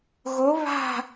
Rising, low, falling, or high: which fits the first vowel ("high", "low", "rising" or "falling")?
rising